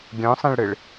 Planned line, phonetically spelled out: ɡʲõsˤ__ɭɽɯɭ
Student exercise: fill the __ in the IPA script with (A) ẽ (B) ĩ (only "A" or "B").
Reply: B